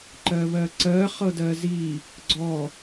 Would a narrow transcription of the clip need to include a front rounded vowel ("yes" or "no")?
no